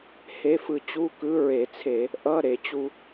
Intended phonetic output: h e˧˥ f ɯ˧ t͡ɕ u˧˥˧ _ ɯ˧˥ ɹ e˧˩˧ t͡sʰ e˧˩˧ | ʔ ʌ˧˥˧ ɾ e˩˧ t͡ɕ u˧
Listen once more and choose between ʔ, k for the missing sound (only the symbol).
k